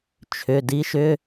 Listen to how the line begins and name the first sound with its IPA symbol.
t͡ʃʰ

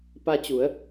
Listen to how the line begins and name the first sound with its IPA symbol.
p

